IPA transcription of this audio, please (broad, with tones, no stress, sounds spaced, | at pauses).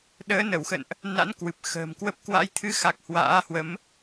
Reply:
ɗ əː˨˦ n ə˧˩ w x ə̰˧˨ n ʔ | n a̰˧˥ n k w ɨ˨˩ p̚ x ə̤ː˨˩ m k w ə˦˥ p̚ k w a̰˧˥ j t̪ʰ ɨ˨˦ x a˨˩ k̚ h w a̰ː˧˥ h w ə˨˦ m